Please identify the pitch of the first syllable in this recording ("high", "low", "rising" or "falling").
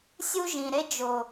high